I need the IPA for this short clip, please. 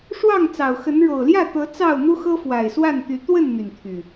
ʂ w ɑ˥˨ ŋ t͡s ɑ˨˩ ʊ̯ x ə˨˦ n ɻ o˨˩ ʊ̯ l j ä˥˨ t̪ ɤ˨˦ t͡s ɑ˥˨ ʊ̯ n̪ u˦ x ɤ˦ f w a˨˩ ɪ̯ s w a˥˨ n t̪ y˨˦ t̪ w ə˥˨ n n̪ y˩ n t̪ʰ y˩

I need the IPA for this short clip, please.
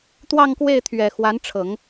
t̪ w ɑ˥˧ ŋ k w e˥˩ ɪ̯ t̪ʰ ɥ ɛ˨˩ x w a˧˥ n ʈ͡ʂʰ ɤ˨˩˦ ŋ

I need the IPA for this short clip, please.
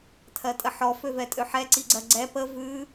tʰ ɜ tʼ ə ħ ɔ f ø v ɛ tʼ ø ħ ɛ ǀ i ɡ͡ǀ ɜ ɡ͡ǀ ɛ p ə v ʉ

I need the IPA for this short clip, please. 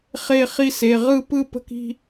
χ e˥˧ χ i˥˧ s e˩˧˩ ʁ ɯ˥˧ p ɯ˥˧ p ə̤˥˧ k i̤˥˧

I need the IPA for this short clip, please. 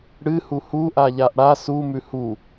ɽ ɨ h u h u ʔ a ʎ a ʔ ɽ a s u m ʉ h u

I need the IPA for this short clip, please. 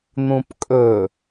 n̪ ũ p kʼ ɵ

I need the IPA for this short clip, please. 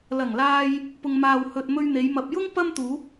l ɐ˨˩ ŋ l aː˧ j | p ʊ˨ ŋ m aː˨ w h ɵ˨ t̚ m ɵ˧ ɥ n̪ e˨˧ j m ɐ˨ p̚ j ʊ˥ ŋ p ɐ˥ m t̪ uː˨˥ p̚

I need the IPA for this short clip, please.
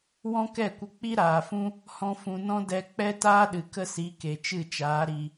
w ɔ̃˦ k ɛ˦˨ kʷ ə˧ k͡p i˦ ɾ aː˨ f ũ˦ | h ɔ̃˦ f ũ˧ n ɔ̃˦ d ɛ˧ k͡p ɛ˦ t aː˦ ɗ ɨ˨ k ə˦ s i˨˦ k e˨ t͡ʃ ɨ˦˨ t͡ʃ aː˨˦ ɾ i˧

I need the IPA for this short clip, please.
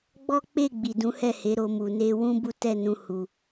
ɡ͡b ɔ˦ k͡p e˦˨ ɡ͡b i˨ d ũ˨˦ h ɛ˦˨ h e˨˦ ɾ o˧ m u˨ n e˧ w ũ˦ b u˦ t ɛ˦˨ n ũ˧ h u˨

